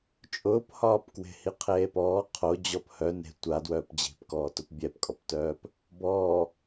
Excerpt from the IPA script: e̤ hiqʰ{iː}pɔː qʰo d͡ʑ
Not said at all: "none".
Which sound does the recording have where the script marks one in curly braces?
eː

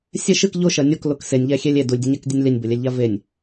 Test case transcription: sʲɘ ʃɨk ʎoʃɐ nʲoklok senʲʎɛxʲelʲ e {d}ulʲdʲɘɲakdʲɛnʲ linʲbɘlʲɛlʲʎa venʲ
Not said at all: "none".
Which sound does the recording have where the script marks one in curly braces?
d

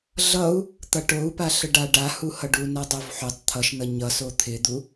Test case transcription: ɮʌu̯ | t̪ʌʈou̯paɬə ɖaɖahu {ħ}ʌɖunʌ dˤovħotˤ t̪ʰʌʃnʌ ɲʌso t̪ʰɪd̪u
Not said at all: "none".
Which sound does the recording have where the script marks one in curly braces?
h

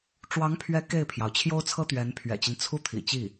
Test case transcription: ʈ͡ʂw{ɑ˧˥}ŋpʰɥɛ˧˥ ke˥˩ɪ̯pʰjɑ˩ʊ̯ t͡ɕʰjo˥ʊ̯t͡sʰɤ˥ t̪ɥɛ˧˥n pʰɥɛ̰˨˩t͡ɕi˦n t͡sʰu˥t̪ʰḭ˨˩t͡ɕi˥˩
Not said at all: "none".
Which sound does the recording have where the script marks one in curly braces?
ɑ˧˥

